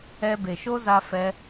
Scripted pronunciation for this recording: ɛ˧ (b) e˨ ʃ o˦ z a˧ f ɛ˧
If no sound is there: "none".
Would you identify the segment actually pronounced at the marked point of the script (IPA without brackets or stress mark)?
b